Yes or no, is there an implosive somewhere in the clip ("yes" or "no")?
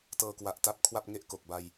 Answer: no